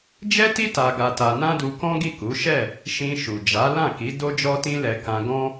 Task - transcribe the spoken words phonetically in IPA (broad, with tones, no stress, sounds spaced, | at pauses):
d͡ʒ ɛ˦ t i˦ t a˧ ɡ a˧ t a˧ n ã˦ d u˧ k ɔ̃˦ ɡ i˦˨ k u˨˦ ʃ ɛ˦˨ | ʃ ĩ˧ ʃ u˨ d͡ʒ a˨˦ l ã˦˨ k i˨˦ d o˦ d͡ʒ ɔ˦ t ĩ˦ l ɛ˧ k ã˧ ɡ ɔ̃˦